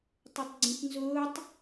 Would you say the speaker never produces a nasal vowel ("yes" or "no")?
no